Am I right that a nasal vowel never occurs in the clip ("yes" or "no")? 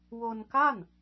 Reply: yes